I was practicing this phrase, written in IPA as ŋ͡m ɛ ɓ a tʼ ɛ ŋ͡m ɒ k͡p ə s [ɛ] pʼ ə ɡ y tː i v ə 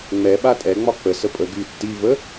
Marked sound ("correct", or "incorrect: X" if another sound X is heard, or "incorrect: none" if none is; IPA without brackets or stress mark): incorrect: ə